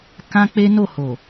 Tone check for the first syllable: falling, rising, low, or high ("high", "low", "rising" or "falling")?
high